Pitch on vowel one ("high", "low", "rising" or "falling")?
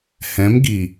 rising